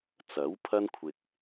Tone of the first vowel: rising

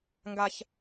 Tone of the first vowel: high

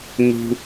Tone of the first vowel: high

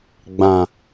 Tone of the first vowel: low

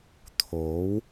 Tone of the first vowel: rising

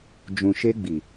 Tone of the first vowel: low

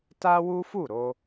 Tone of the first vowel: high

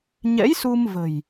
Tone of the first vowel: rising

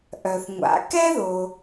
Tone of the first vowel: low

